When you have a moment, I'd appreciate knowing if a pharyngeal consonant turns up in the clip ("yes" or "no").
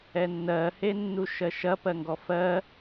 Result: no